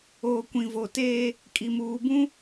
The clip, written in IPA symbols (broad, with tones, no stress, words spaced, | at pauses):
oː˨kʷĩ˨vo˨teː˦ | kʼi˨muː˨bũ˦